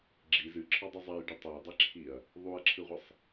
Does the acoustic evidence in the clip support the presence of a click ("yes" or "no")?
yes